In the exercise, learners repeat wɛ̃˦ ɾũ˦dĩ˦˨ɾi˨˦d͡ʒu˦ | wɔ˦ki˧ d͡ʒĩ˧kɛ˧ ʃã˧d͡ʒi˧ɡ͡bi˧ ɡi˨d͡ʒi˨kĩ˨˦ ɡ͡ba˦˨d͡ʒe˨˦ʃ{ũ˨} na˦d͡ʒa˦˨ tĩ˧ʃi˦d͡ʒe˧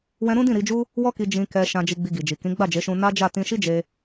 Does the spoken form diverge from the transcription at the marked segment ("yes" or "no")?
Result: yes